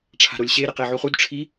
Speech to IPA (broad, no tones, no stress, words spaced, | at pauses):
ʈ͡ʂʰa̤ɾolʲɕe ɾeqeʕuχud ʈ͡ʂʰi